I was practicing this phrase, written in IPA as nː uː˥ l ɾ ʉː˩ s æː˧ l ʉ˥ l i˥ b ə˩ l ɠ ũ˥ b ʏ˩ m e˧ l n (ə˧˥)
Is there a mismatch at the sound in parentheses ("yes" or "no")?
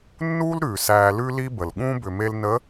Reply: no